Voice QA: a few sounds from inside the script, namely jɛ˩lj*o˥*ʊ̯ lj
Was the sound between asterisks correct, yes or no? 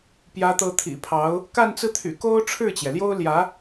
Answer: yes